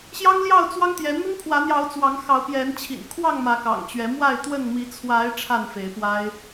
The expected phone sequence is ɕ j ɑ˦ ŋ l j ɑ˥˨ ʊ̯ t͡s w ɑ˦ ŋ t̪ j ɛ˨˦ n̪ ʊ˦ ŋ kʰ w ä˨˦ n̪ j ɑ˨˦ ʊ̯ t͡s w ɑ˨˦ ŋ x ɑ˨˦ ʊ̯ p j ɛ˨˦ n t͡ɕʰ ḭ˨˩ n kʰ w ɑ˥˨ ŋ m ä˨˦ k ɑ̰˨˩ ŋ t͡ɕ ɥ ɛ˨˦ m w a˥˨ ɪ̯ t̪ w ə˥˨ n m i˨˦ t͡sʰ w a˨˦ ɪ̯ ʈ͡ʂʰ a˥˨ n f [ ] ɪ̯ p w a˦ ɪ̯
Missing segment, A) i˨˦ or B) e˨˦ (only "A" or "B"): B